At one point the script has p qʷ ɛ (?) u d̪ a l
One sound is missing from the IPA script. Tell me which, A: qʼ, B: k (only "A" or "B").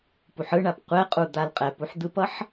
A